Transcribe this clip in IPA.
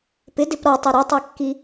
p ɪ d ɪ p ɾ ɔ tˤ ɛ ɾ ɛ tˤ a kː i

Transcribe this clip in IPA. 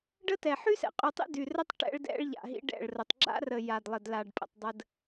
ɖ ə˦ t ɛ˨ ħ y˦ s ɛ̰˨ qʼ y˨ tˤ ḭ˦ d y˨ r ə˦ tˤ ʈ ɛ̰˦ ɭ d ɛ̰˦ ɭ ʎ a̰˨ ɦ ḭ˦ ɖ ɛ̰˦˨ ɭ r ə˨ tˤ ɡ͡ǁ a̰˦ r ə˨ j a˨ d lˠ ə˨ d l a˨ ɖ pʼ ə̰˨ tˤ dˤ ə˦ d

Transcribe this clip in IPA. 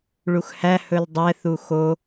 ɭ u x h æ h ɵ l dˤ ɛ θ u x o

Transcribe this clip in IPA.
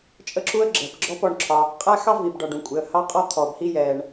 t͡ʃʼ ə˥ ǁ u˥ ə̯ ɡ͡ǁ ɜ˩ p ɡ͡ǁ ɔ˥ p ɔ˩ ɳ ǁʰ ɒ˩ | qʼ æ˥ x ɑ˥ v i˩ b ɖ ɒ˩ ɖ ũ˩ kʷʼ ɪ˩ ə̯ h ɑ˥ qʼ ɔ˥ t̪ʰ ɔ˩ b h i˥ j ɛː˩ ɳ

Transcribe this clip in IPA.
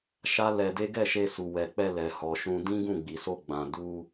ʃ a˦ l ɛ˧ d e˦ ɡ ɛ˦˨ ʃ e˧ s u˨ w ɛ˨ k͡p ɛ˧ l ɛ˨ h ɔ˨ ʃ ũ˧ d ĩ˦ ɡ ũ˦˨ ɡ͡b i˨ s o˧ ɡ͡b ã˨ d u˧

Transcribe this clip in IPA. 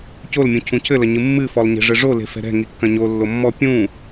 c o l mʲ ũ cʰ ũ cʰ ɘ l ɐ ɲ ɨ mː ɨ f ɔ lˠ ɲ e̤ ʐ ɘ ʐ o l e̤ f ɛ̤ ɾ ɛ̤ ŋ i kː ɐ̃ ɲ o lː o mː ɔ pʲ ũ

